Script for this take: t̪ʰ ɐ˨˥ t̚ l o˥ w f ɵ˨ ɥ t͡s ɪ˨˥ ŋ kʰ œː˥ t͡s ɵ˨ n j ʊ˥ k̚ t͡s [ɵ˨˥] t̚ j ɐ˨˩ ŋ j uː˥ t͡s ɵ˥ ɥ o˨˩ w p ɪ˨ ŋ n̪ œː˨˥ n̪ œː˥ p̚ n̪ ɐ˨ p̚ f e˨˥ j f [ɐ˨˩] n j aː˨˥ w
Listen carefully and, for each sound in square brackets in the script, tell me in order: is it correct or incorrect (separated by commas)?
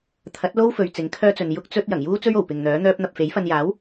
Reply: incorrect, incorrect